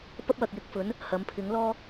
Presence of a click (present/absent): absent